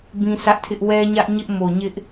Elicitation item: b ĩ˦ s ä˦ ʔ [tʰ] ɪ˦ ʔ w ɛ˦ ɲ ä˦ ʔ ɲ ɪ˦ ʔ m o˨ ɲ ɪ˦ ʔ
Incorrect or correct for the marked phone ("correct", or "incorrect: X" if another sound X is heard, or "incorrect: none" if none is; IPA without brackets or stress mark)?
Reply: correct